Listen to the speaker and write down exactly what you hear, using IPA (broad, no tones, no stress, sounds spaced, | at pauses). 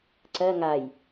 ǀ ɜ ŋ a j